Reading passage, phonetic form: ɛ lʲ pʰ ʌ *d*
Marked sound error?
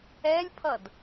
no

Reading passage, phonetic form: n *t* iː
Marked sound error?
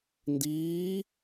yes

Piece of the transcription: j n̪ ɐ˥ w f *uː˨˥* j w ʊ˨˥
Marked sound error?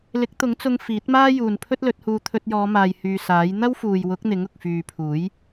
yes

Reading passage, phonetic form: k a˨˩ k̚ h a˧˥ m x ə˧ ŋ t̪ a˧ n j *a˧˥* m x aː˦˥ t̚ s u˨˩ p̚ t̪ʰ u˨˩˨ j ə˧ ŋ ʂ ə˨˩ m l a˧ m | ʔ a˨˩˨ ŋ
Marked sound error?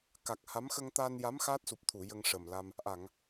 no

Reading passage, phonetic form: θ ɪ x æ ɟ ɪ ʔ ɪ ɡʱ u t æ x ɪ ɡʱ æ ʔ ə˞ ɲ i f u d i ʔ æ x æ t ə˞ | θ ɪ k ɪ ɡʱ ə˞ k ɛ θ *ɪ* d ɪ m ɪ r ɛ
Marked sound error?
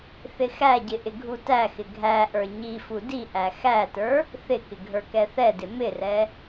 yes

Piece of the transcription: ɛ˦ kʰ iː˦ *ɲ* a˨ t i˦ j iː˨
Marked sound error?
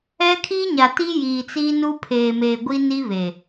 no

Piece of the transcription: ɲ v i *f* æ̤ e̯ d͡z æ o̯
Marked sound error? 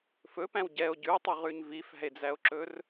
no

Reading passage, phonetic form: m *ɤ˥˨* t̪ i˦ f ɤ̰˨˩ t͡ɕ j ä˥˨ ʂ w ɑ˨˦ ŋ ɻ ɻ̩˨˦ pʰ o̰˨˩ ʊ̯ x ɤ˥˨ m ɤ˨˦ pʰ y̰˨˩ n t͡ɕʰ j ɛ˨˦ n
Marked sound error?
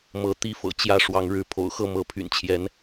yes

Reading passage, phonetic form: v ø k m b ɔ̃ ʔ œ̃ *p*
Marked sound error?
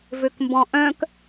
yes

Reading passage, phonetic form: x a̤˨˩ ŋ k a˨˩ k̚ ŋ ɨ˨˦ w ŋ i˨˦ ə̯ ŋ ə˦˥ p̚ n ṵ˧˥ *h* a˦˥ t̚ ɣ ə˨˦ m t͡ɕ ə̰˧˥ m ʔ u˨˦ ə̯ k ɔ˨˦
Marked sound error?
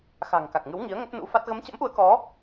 yes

